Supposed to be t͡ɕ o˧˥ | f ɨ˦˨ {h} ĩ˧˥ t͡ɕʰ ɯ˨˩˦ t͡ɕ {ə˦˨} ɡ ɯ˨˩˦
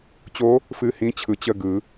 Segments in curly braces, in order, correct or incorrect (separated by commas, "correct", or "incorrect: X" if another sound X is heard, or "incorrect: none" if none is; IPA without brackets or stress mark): correct, correct